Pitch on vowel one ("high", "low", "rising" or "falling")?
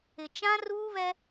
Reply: low